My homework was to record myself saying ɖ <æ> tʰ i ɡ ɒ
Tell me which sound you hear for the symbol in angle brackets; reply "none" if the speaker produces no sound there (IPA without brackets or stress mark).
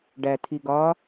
æ